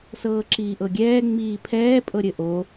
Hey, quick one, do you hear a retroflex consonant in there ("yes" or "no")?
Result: no